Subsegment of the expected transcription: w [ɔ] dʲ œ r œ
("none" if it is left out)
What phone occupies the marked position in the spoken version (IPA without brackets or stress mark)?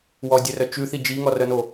ɔ